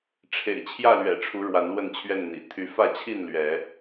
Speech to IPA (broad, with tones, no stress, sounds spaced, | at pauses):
ʈ͡ʂʰ ḛ˨˩ ɪ̯ t͡ɕʰ j ä˥˨ l ɥ ɛ̰˨˩ ʈ͡ʂʰ u˨˦ ɻ w a˨˦ n l w ə˥˨ n t͡ɕʰ ɥ ɛ˥˨ n n̪ ḭ˨˩ t̪ʰ y˨˦ f ä˥˨ t͡ɕʰ i˥˨ n l ɥ ɛ˨˦